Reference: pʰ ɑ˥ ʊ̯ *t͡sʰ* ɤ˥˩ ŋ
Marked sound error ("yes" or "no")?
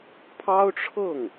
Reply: yes